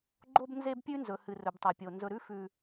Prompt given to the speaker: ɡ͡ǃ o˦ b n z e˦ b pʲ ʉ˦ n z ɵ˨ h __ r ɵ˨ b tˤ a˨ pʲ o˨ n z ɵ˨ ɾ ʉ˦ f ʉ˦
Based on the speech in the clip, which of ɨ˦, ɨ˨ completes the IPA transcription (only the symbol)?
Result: ɨ˨